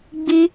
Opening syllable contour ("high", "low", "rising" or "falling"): high